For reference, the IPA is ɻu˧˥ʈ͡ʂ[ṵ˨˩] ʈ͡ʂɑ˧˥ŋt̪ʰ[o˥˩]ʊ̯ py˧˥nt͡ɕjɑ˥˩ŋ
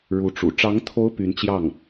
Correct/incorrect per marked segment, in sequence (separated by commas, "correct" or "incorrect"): correct, incorrect